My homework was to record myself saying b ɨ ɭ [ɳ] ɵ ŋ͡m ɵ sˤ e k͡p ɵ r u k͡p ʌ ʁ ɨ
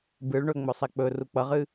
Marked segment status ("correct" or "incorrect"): correct